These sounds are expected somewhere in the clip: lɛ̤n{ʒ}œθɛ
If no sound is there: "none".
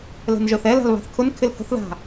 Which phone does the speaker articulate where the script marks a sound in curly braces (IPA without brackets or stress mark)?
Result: ʒ